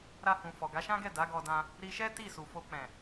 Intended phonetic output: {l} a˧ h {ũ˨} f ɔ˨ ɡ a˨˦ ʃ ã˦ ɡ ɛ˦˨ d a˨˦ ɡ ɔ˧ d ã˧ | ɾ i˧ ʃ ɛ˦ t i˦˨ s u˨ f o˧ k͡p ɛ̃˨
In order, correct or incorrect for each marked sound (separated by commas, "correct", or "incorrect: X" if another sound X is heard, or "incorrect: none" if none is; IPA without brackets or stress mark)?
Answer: incorrect: ɾ, correct